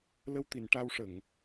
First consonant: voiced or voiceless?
voiced